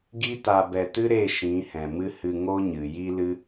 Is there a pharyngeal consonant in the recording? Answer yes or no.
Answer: no